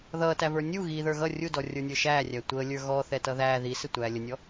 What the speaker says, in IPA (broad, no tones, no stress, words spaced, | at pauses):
ðʌːtævə˞ nʲu ɣiðə˞ ɣʌ rʲudɔrʲə˞nʲə˞ ʃæːrʲæ tʷəːlʲə˞ ɣɔθɛtʌ ðæː ðisɪtʷæː lʲənʲɔ